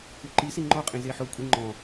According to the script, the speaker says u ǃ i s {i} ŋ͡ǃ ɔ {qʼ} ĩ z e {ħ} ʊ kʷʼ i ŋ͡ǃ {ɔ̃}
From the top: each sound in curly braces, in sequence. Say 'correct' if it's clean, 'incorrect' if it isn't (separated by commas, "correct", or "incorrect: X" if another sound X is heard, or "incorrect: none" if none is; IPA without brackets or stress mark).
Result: correct, correct, correct, correct